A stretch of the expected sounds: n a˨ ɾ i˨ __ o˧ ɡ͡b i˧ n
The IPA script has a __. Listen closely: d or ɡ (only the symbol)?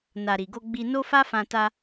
ɡ